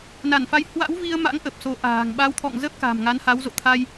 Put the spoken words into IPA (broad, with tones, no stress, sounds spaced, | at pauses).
n a˧˩ n f a˨˦ j h w a̰˧˥ w v i˧ ə̯ m a̰˧˥ ŋ ʔ ə˨˩ p̚ s o˨˦ ʔ a̤ː˨˩ ŋ ɓ a˨˦ w t̪ʰ ɔ̰˧˨ ŋ z ə˦˥ p̚ k a̤˨˩ m ŋ a˨˦ n h a˨˦ w z o̰˧˨ t̪ʰ a˧ j